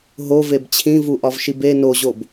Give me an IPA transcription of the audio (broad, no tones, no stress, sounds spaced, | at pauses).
ɦ o v e b t͡ɕʰ ĩ v u ʔ ɒ v ʃ i b e n o ʑ o b